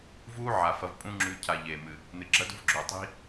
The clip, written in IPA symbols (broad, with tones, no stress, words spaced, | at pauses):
vuː˦ ʕa˨fɐ˧v pʼũ˦ŋ͡ǁʉ˧ cʰa˧ʎeː˨mɨ˨ | nɨ˨ɡ͡ǁɐ˦dṳ˦vɡ͡ǁɵː˨ tˤi̤˦